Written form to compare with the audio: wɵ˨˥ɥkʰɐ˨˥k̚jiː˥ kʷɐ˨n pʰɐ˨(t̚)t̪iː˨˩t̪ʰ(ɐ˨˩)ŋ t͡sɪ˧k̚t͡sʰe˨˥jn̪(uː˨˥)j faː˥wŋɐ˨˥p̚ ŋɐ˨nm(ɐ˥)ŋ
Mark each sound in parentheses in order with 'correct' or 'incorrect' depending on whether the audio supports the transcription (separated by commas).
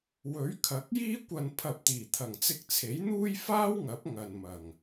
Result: incorrect, correct, incorrect, incorrect